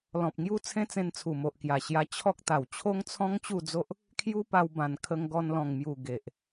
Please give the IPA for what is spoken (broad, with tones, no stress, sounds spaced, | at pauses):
l ɔ̃˨ p̚ ŋ j u˧ t͡sʰ ẽ˦ t͡s ẽ˧ n t͡sʰ u˨˩ m o˨ ʔ k j a˨˩ ɕ j a˧ t͡ɕʰ ɔ˦ k̚ t̪ a˨˩ w t͡ɕʰ o˦ ŋ t͡sʰ ɔ̃˦ ŋ t͡ɕ u˥˧ d͡z o˦ ʔ | kʰ j u˦ p a˧ w b ã˨˩ n kʰ ə˧ ŋ ɡ ɔ˧ n l ɔ̃˨˩ ŋ m j u˨˩ ɡ e˨ ʔ